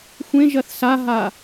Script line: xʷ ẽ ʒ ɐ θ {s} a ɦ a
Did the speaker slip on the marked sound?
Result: no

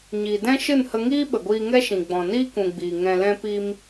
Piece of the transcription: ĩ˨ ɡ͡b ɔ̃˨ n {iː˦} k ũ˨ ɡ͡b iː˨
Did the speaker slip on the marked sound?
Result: no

